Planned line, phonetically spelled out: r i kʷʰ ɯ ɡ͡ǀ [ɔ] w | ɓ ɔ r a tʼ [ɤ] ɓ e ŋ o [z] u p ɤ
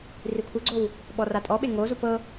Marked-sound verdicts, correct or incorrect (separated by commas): incorrect, incorrect, correct